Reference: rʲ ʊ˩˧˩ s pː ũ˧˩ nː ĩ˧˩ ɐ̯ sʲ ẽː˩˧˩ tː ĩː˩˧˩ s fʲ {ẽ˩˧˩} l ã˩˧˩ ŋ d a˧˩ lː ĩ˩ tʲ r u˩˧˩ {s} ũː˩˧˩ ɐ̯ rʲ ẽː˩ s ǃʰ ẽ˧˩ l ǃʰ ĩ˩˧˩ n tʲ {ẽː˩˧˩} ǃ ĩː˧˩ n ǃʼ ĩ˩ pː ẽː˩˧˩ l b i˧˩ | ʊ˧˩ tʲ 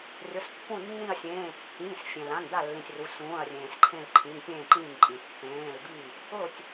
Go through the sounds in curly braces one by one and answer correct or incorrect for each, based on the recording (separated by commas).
incorrect, correct, incorrect